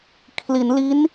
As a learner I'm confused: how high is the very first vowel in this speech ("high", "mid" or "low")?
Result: high